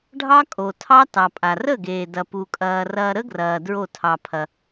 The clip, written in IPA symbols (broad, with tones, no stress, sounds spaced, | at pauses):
ɖʱ ɑ˦ kʼ o˨ tʰ ɑ˦ t ɑ˨ pʼ a˨ r ə˦˨ ɡ eː˨ d ɐ˨ p u˨ kʼ ɐː˨ r ɐː˧ ɾ ə˦ ɡ r ɐː˨ d ɹ o˦˨ tʰ ɑ˧ pʰ ɐ˧